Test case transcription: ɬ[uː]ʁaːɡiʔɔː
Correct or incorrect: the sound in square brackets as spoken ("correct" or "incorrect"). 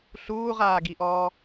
correct